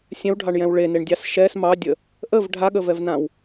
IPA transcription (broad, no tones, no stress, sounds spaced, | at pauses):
sʲ ɛ̃ w ɖʱ ɑ ɳ j ɛ̃ w ɭ e n e ɳ dʲ ɑ s ʃ ɛ s m ɑ dʲ ə | ʔ ə v ɖʱ a ɠ ə v ɛ v n ã w